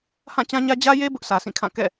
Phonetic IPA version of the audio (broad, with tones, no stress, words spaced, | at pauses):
hã˦˨ t͡ɕã˦ɲä˦ d͡ʑä˦je˦ bʊ˦ʔsʰä˨sʰĩ˦˨kʰã˦˨ kɛ̰˦˨